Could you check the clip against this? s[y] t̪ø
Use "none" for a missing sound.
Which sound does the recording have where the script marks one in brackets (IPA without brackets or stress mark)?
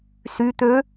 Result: y